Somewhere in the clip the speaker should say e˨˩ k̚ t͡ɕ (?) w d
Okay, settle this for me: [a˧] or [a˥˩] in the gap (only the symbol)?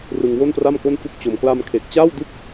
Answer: a˥˩